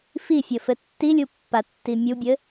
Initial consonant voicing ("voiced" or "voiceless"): voiceless